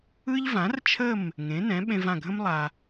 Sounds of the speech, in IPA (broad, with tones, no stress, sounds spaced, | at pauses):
ɯ˥ ʎ v ã˩˥ r t͡ʃʰ ə˥˩ m | ŋ ẽ˩˥ n ɛ̃˩˥ ɓ ẽ˧ v ã˥˩ ɡʱ ə̃˥ m lˠ a˩